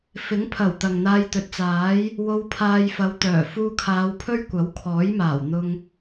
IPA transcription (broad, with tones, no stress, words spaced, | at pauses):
fɪ˨˥ŋ pʰɐ˨˩w t̪ɐ˨ŋn̪aː˧jt̪ɵ˨t̚ t͡saː˨˥j | wo˧wpʰaː˧jfɐ˨˧wt̪œː˨˩ fuː˧kʰaː˨˧wpʰɵ˥ɥ kʷɐ˨˥wkʰɔː˨˥jmaː˨˩w n̪ʊ˧ŋ